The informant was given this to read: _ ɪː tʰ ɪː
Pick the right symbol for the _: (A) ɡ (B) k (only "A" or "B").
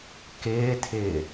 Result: B